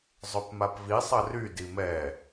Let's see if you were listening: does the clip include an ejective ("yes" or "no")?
no